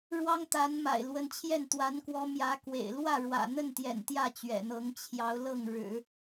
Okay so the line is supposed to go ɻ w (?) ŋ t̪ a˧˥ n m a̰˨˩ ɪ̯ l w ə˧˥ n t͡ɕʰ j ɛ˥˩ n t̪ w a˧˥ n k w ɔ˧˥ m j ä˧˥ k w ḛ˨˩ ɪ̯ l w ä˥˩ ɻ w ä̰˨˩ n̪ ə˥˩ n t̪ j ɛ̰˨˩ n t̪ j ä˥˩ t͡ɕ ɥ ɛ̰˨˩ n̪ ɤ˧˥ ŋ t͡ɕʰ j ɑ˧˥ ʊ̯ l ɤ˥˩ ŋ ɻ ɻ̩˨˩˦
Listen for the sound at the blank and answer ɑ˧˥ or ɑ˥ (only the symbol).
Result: ɑ˥